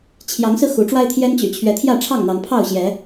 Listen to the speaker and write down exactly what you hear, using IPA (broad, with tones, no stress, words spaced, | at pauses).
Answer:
t͡ɕʰjɑ˨˦ŋsɹ̩˧ xu˨˦ʈ͡ʂwa˦ɪ̯t̪ʰjɛ˦n t͡ɕy̰˨˩t͡ɕʰɥɛ˨˦t̪ʰjä˥˨ ʈ͡ʂʰɑ˥˨ŋn̪ɑ˨˦ŋ pʰɑ˥˨ʊ̯ɕjɛ˨˦